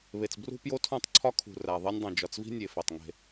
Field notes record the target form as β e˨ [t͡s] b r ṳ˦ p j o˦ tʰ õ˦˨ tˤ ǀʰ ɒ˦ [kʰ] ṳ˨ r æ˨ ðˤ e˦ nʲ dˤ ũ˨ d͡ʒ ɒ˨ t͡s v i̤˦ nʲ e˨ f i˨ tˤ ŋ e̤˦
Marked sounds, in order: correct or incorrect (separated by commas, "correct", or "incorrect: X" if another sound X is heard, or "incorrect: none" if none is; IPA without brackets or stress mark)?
correct, correct